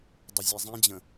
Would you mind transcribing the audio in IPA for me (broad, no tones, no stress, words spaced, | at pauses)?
dˤʊzʲezˤĩd͡ʑə̃